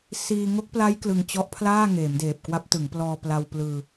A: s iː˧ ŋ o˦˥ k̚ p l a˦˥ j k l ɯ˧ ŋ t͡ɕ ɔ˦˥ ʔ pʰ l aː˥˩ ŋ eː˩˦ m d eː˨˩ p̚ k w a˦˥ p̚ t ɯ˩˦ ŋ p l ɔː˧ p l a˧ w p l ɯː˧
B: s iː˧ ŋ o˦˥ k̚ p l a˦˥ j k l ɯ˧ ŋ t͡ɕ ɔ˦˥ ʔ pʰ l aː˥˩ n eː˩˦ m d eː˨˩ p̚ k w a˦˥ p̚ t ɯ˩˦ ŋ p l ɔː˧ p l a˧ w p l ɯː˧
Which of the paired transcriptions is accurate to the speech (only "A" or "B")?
A